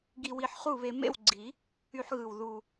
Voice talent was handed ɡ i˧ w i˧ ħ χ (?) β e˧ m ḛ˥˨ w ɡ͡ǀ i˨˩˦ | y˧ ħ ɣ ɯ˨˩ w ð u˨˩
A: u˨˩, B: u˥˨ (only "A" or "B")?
B